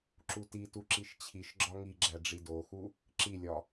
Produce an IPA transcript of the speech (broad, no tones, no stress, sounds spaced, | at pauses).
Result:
ǁ u t i t u ǁ i ʃ t͡ɕʰ i ʃ ɡ͡ǁ ɒ ŋ i ɡ͡ǁ æ ɖ͡ʐ i d o x u | ǁ i lʲ ɒ